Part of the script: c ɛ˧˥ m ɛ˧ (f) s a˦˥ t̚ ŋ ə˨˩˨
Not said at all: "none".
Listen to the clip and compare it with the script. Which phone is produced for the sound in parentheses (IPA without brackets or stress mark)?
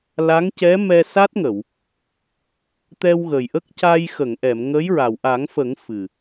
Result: none